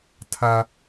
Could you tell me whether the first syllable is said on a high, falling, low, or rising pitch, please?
high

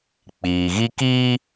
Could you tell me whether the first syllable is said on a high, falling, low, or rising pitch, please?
low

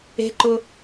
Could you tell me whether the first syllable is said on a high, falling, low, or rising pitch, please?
rising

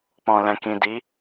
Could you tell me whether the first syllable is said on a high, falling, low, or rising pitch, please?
low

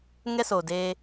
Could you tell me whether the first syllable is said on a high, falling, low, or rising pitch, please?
high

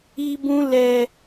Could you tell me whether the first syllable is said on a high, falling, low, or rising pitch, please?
high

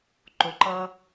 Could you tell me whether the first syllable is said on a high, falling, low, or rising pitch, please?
low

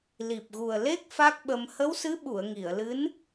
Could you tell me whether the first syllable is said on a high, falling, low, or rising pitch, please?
low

